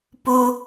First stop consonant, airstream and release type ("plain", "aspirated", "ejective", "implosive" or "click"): plain